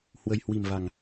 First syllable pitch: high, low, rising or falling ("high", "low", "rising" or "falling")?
low